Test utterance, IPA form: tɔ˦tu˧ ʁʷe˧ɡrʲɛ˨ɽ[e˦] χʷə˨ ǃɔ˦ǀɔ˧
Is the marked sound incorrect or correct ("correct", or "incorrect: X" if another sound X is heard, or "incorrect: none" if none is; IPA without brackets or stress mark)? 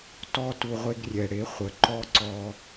incorrect: e˨˦